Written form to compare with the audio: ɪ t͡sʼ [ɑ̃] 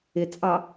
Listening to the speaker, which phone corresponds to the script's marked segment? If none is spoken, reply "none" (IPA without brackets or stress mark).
ɑ